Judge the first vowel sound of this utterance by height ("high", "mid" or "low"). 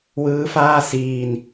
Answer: high